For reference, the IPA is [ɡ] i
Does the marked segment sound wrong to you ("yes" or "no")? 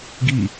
no